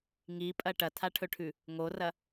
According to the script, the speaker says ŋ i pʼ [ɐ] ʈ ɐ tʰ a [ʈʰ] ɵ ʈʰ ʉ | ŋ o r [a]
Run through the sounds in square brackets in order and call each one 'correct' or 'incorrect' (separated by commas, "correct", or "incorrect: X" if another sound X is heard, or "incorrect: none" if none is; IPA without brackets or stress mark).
correct, correct, incorrect: ɐ